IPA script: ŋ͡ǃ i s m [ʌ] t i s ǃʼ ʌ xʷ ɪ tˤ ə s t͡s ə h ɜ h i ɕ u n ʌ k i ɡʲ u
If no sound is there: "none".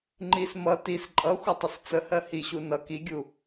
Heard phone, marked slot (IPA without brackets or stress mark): ʌ